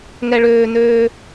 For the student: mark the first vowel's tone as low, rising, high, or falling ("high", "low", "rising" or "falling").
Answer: high